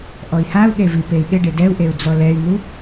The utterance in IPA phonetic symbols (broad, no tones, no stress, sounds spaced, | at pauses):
ʔ ɔ i̯ h a u̯ ɠ e v i p e i̯ ɠ ɪ ɖ ɪ d ɛ u̯ ʔ e u̯ d͡z ɔ l ɛ y̯ n̪ u